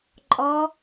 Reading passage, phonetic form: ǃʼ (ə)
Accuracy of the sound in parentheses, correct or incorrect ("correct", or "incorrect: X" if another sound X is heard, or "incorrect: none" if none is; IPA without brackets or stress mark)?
incorrect: ɔ